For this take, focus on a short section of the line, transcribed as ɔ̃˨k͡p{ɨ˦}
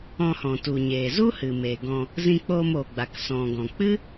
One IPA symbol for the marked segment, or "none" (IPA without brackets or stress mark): ɨ˦